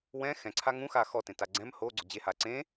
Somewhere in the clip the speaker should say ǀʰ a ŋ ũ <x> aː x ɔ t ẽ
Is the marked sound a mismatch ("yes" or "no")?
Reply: no